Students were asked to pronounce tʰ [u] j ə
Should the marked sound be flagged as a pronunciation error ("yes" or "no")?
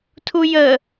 no